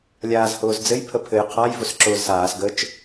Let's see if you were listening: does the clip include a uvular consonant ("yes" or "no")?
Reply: yes